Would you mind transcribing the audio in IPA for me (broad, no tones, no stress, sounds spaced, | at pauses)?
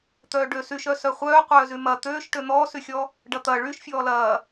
t̪ œː ɖ ø s y ʃ œ s œ χʷ œː qʷ œː z y m ɐ t̪ øː ʃ ʈ ø n̪ ɔː s y xʲ ɔ | ɖ ɐ t̪ ɐ ɭ y ʃ fʲ ɔː l ɐː